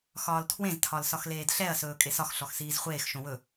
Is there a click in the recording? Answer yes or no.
no